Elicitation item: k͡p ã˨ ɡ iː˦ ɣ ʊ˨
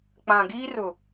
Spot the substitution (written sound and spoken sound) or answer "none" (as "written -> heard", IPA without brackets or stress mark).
ɣ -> r